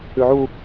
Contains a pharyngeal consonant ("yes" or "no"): yes